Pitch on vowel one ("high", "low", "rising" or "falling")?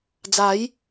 rising